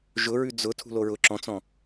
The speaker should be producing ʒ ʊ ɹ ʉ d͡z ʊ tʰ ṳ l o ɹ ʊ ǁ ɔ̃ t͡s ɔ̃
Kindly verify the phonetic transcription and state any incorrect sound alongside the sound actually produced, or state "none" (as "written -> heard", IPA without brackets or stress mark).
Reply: none